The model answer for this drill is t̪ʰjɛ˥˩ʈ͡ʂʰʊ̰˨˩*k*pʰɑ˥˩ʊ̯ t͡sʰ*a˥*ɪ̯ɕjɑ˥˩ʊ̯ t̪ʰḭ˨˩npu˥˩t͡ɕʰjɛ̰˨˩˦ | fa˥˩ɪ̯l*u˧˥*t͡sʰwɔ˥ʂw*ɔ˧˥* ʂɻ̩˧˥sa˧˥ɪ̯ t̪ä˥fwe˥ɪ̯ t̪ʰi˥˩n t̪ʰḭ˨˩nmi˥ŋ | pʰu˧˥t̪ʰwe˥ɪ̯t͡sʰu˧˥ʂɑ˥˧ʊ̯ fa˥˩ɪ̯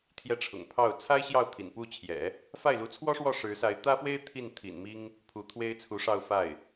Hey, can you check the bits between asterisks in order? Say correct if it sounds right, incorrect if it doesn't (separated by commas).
incorrect, correct, correct, incorrect